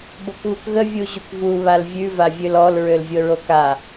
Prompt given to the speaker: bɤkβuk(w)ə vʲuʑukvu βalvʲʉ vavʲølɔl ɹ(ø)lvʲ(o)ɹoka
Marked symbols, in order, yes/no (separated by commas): no, yes, no